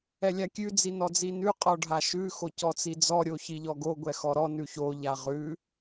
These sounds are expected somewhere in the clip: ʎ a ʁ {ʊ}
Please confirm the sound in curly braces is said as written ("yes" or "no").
no